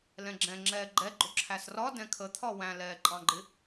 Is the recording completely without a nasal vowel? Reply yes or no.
no